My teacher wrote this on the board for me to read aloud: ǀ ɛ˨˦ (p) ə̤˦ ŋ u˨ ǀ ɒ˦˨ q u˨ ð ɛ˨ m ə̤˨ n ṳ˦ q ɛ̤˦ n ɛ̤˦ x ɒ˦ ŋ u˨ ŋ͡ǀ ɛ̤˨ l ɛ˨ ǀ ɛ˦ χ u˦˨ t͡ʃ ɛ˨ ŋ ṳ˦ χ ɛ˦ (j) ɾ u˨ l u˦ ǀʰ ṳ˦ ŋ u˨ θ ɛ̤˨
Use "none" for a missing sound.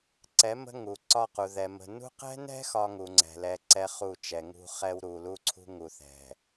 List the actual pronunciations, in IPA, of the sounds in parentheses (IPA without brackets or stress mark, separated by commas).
m, w